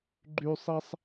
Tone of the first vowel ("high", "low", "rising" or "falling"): high